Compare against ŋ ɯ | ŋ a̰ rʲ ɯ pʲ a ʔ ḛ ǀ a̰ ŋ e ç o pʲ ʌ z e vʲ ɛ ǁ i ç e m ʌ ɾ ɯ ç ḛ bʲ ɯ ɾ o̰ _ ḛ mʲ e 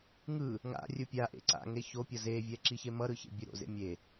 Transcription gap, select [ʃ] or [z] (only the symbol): z